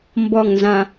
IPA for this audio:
m b ɔ˨˩ ŋ n z ã˨˩

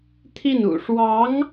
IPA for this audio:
t̪ʰ i˥˩ n ṵ˨˩ ʂ w ɑ˧˥ ŋ

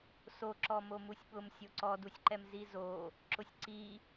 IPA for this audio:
s o ǁ ɔ m o m u sʲ ɓ ʊ m sʲ o ǀ ɔ d u sʲ ǃ ɛ m z i z o | ǁ ʊ sʲ ǀ i

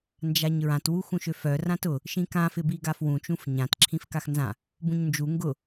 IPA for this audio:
n d͡ʒ a ɲ ɹ ã t w u x ũ ʃ ø f œ r ã t ʊ | ʃ ĩ k ã f ɪ b i ɡ a f w ũ t͡ʃ ũ f ɲ ã t ǁʰ ĩ f k a x n z ã | b ũ ɲ n d͡ʒ u ŋ ɡ ʊ

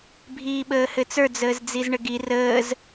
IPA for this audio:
bʱ iː ɓ əː h ɘ t͡s ə˞ d͡z əː z d͡z i z ɳ ə ɡ i r əː z

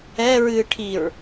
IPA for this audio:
ɛ ɹ ɨː ʈʰ i ɹ

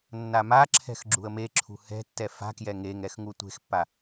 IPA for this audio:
nː a m a ǁʰ ɛ̤ x ɡ͡ǁ ṳ ə̯ m e ǁʰ ṳ h ɛ̤ tː ɛ f a̤ k j ɛ ŋ e ŋ ɛ x ŋ u tʷ e̤ x pː a

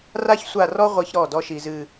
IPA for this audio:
r a˦ ç sʷ a˦˨ r ɔ˦ ʁʷ i˦ ç ɾ ɔ˦˨ d ɔ˦ ʃ i˨ z ɨ˨

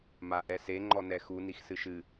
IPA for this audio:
m a ʔ ɛ s e ŋ͡ǃ ɔ n ɛ x u n i x s ɨ ʃ ɨ

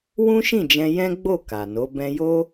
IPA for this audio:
w ũ˦ ʃ ĩ˦˨ d͡ʒ ɛ̃˧ j ɛ̃˦ ɡ͡b o˦˨ k a˨ n o˨˦ b ɛ̃˧ j o˦

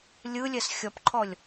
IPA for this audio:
lʲ ɯ lʲ ɛ s xʲ ɔ p ǃʰ ɔ lʲ

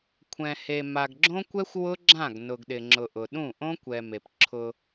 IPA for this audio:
kʷʰ ɛ̃˨ h e˨ m a˨ ɡ ɡ͡ǁ õ˦ kʷ ɛ˦ xʷ w ʊ˦ ɡ͡ǁ ã˦˨ ɡ n ʊ˨ ɡ ɗ ɪ˨ ŋ͡ǁ ʊ˨ ʔ ʊ˨ ɗ ũ˦˨ ʔ õ˦ kʷ ɛ˨ m e˨ p ǁʰ ʊ˦

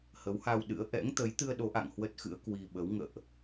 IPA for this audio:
h ə˨˦ w h a˧ w ɗ ɨ̰˧˥ ə̯ ʔ ɛ̰˧˥ ŋ t̪ ə˨˦ j t̪ ɨ˧ ə̯ ɗ o˨˦ ʔ a̰˧˨ ŋ h w ə˦˥ t̚ x ɨ̰˧˥ ə̯ k w i˧ ɓ ə˨˦ w ŋ ə̰ː˧˨ ʔ

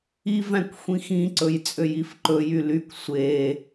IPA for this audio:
i v æ̃ kʷ xʷ ĩ x ĩ ǀ ɵ j t͡sʼ ø j i f ǃ ɵ j y l y kʷ sʷ e

